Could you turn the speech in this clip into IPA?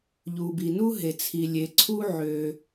ʎ u˩ b i˩ n u˥ ɦ e˩ t͡sʰ i˩ lʲ e˩ ǀʰ u˥ ʕ ø˩

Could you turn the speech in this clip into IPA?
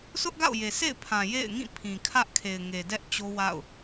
s ʊ˦ ʔ ɡ a̰˦˨ ʊ̯ j e˨ sʰ ḛ˦˨ ɪ̯ pʰ ã˨ j ḛ˦˨ ɪ̯ ŋ ĩ˦˨ pʰ ĩ˨ kʰ ä˦ ʔ kʰ e˨ ɪ̯ ŋ e˨ d ɛ˦ ʔ t͡ɕ o˦ w a̰˦˨ ʊ̯

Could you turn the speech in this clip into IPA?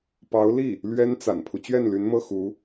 p ɑ˧˥ ʊ̯ l i˥˩ | l ɥ ɛ˥ n t͡s a̰˨˩ n pʰ u˦ t͡ɕ ɥ ɛ˥˩ n l y˧˥ n m ɤ˥˩ x u˧˥

